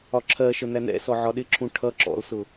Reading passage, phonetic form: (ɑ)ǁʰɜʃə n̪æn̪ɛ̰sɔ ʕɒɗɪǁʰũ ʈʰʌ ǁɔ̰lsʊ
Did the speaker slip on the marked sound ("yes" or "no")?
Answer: yes